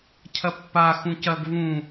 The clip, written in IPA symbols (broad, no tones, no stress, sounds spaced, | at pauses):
cʰ ɐ pː a x ũ c ɐ ɡ v ũ